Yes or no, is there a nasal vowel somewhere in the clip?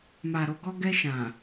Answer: yes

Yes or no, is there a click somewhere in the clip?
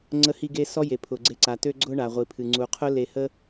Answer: yes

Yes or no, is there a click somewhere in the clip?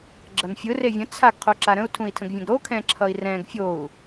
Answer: yes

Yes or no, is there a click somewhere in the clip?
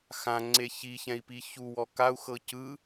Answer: yes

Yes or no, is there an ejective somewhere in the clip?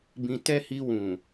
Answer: no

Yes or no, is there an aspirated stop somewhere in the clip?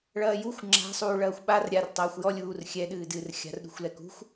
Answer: no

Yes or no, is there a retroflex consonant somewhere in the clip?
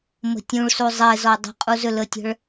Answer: yes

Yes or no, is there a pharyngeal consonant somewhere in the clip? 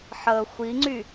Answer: yes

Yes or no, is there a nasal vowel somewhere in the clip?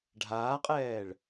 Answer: no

